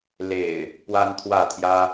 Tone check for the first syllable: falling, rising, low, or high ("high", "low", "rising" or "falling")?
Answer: low